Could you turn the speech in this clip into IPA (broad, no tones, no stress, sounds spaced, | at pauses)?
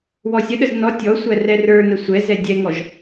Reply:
w ɔ sʲ ə ɗ ə z n ɔ tʲ ɔ sʷ æ r ɛ r ə˞ n ə sʷ ɛ z ɛ dʲ ɛ ŋ ɔ ʒ